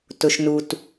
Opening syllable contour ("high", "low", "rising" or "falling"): low